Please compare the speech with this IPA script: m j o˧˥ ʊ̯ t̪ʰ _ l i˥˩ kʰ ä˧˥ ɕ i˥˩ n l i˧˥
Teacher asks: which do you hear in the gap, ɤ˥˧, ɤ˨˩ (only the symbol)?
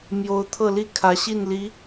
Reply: ɤ˥˧